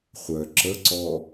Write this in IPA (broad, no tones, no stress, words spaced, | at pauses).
χʷœ ǁəǀɔ